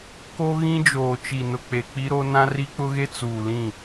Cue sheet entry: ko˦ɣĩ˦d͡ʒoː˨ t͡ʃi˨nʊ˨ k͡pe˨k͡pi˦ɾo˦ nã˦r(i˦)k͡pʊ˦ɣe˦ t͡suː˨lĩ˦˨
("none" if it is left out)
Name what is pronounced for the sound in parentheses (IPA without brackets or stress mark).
i˦